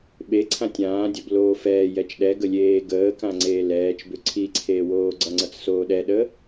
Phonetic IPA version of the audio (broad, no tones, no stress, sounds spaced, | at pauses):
ɓ e ǀʰ ã tʲ ãː dʲ ʌ b l oː f ɛː j ɛ t͡ʃ ɗ ɛ ɡ ə lʲ eː ɡ əː k ã ŋ͡ǀ eː l ɛː t͡ʃ b ʏ ǀʰ i ǀʰ eː w oː ɡ͡ǀ ʌ ŋ͡ǀ ʌ t͡s s oː ɗ ɛ ɗ ə